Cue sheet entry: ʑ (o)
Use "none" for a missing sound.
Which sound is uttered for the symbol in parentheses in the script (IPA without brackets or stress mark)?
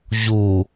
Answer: u